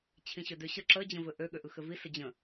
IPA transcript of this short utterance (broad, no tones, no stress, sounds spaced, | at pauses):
t͡ɕʰ ĩ ɕ ø d ø ɕ ə ǁ ə d͡ʑ ə̃ v ɘ ʔ ø ɠ ø ʔ ɯ x ɘ v i s ə d͡ʑ ə̃